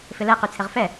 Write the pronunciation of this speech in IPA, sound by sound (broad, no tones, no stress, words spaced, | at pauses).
fɪlɛ qyt͡sʰɪʁfɛ